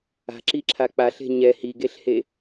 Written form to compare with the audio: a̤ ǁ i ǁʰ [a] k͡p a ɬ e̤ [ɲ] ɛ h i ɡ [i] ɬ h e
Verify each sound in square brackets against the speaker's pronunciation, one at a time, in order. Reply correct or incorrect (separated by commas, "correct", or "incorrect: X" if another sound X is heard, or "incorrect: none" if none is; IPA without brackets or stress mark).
correct, correct, incorrect: e